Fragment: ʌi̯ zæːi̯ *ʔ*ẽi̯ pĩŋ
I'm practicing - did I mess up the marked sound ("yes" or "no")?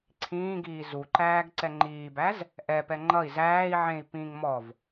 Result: yes